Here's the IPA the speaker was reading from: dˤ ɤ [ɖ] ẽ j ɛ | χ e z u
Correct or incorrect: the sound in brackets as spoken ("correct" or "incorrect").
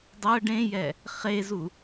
correct